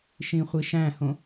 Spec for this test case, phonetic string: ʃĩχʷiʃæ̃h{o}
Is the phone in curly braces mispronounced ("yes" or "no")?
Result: yes